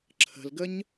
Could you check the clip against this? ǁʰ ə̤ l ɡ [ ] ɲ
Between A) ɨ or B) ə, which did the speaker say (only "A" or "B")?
B